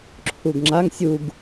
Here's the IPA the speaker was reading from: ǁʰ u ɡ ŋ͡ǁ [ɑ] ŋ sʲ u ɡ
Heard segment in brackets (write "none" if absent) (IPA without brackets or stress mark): a